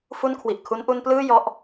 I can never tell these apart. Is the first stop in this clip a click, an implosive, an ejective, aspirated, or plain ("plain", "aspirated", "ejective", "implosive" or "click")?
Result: aspirated